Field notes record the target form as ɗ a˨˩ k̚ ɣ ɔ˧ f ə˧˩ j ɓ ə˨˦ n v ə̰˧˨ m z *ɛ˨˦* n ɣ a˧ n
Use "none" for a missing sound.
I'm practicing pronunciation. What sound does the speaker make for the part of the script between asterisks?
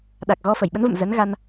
ə˨˦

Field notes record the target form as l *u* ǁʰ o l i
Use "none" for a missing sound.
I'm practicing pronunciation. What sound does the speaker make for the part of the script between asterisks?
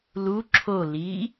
u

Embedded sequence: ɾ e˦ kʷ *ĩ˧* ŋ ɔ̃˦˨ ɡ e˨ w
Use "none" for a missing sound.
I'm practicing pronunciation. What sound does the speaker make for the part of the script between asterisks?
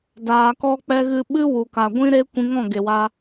ĩ˧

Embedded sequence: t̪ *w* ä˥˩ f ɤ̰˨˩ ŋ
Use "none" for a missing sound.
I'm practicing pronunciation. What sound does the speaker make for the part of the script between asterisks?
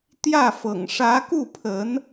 j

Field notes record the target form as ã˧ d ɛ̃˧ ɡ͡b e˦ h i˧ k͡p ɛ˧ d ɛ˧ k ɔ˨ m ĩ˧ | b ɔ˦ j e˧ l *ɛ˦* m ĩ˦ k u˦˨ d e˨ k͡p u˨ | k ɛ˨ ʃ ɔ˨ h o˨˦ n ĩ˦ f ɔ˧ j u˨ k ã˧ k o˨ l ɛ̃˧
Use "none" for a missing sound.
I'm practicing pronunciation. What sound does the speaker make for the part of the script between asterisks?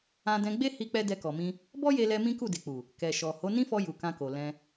ɛ˧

